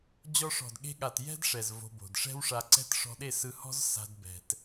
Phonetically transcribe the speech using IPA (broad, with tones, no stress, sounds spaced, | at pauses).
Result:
d͡ʑ ɔ˧ ʂ ɔ̤˨ d ɠ e̤˧ ɠ a˨ t j ɛ̤˦ d ʂ ɛ˨ z v o̤˧ b o̤˨ d ʂ ɛ̤˦ w ʂ a˧ ǀ ɛ̤˦ t ʂ ɔ̤˧ ɗ e˦˨ s ɯ˧ h ɔ̤˦ z s a̤˦ d b ɛ̤˧ t